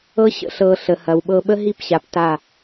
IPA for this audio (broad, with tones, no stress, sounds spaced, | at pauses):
ɤ˦ ɕ ə̰˧ ɬ ɤ˨ ɬ ə˨ h ɐ˨ w ɓ ɤ˧ ɓ ə˦ ɦ i˦˨ p ɕ a˨ p t a˦˨